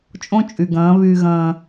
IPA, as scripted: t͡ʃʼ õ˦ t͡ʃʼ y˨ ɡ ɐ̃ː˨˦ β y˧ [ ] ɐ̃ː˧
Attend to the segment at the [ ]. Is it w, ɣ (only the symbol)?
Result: ɣ